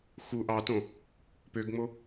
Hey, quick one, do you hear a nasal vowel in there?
yes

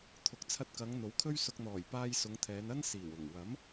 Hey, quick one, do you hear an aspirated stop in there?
yes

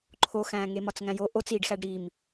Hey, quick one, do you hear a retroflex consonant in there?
yes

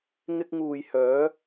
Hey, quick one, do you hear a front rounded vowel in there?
yes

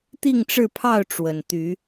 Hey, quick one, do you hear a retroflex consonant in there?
yes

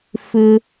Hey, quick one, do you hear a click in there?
no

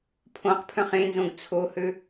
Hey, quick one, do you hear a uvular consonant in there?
yes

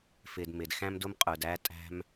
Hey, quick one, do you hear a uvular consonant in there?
yes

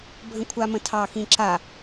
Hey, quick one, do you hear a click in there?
yes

